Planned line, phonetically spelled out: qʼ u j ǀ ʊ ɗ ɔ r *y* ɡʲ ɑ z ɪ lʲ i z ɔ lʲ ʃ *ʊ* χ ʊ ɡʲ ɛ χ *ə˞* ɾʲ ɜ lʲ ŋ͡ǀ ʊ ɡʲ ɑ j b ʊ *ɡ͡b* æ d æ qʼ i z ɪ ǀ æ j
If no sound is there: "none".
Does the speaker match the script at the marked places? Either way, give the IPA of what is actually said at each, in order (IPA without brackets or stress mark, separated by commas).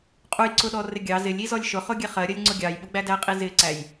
ɪ, ʊ, ɜ, ɡ͡b